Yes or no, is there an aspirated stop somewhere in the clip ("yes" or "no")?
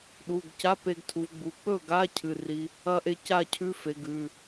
yes